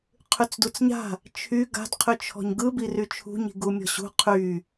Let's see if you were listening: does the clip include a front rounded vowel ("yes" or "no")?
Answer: yes